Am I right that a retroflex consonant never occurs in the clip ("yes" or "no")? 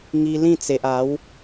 yes